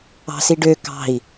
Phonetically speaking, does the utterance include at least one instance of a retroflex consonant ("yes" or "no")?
yes